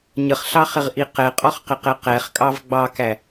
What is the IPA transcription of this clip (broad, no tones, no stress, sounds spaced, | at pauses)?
ɲ ə χ ɬ ɑ χ ɪ ʁ ʔ i q ɛ qʼ ɔ χ q ɪ q ɛ q ɛ χ kʼ ɑ v ɡ͡b ɑ k æ